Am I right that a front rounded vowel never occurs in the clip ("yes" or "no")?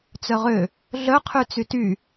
no